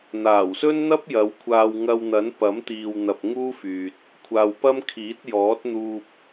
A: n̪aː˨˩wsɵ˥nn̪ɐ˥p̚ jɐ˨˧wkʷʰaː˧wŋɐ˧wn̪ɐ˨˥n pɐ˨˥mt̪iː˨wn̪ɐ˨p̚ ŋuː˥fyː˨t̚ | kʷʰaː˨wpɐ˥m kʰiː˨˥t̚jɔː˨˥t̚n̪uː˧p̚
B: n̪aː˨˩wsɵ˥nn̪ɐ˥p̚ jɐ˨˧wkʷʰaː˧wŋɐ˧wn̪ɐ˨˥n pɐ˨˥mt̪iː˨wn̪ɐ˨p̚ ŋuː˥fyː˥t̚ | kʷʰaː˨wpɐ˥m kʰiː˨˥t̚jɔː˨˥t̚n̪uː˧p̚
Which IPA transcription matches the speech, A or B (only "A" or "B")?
A